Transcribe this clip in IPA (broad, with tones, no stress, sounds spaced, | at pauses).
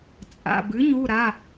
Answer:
t͡sʼ a̰˩˧˩ b ɨ˩˥ ɲ u˩˧˩ ɾ a˩˧˩